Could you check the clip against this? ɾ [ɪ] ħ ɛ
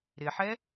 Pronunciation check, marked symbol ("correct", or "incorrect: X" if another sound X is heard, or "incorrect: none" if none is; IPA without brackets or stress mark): correct